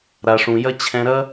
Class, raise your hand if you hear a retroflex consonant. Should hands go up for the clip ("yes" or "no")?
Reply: yes